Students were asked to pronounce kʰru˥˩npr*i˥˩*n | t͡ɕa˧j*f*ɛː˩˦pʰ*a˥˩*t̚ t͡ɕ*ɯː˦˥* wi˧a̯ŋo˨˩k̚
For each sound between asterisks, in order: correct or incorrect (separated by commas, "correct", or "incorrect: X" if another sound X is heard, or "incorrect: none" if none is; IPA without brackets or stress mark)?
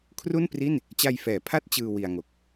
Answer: correct, correct, correct, incorrect: ɯː˧